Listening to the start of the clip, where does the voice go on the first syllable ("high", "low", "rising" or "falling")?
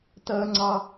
high